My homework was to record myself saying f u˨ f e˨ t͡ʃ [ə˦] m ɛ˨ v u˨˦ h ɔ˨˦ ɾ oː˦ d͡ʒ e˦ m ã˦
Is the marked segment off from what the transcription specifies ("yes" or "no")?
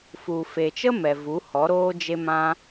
no